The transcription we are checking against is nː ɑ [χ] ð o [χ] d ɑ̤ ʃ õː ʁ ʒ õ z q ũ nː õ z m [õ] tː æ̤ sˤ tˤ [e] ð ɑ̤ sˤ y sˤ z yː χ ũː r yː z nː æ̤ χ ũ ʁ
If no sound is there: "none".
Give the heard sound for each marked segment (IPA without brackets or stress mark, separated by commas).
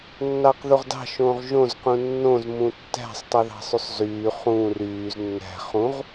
q, ʁ, ũ, y